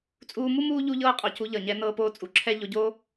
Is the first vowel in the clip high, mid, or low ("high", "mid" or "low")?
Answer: high